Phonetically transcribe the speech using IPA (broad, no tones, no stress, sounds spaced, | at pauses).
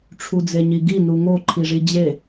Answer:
ʈ͡ʂʰ u d͡z e ɲ i ɡ i n u ŋ o ǃʰ i ʐ i d͡ʑ e